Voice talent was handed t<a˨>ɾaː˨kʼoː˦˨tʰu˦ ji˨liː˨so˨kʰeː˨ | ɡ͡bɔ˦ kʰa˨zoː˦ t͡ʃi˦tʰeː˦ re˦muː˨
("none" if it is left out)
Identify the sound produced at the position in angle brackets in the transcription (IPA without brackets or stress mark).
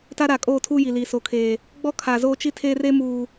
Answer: a˦